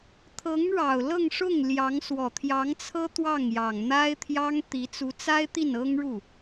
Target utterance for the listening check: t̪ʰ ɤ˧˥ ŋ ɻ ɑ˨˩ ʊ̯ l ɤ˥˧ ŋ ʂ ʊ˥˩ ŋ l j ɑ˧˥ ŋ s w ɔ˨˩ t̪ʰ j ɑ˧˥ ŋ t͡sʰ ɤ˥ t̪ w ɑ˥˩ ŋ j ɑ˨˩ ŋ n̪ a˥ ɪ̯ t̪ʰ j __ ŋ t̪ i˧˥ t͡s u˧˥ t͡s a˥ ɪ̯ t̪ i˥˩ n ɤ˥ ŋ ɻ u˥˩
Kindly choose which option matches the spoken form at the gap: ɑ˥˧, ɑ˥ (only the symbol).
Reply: ɑ˥